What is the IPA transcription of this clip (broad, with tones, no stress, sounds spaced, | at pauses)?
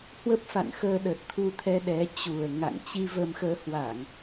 h w ə˦˥ p̚ f a̰˧˨ n x əː˧ ɗ ə˨˩ t̚ t̪ʰ u˧ t̪ʰ ɛ˧ ɗ ɛ˨˦ t͡ɕ u˨˩ ə̯ ŋ a̰˧˨ ŋ t͡ɕ i˧ v ə˧ m x əː˧ h w a˧˩˨ ŋ